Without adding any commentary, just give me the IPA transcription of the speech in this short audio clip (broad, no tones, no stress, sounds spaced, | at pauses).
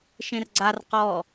ʃ ẽ r ɡ͡ǀ a r q ɔ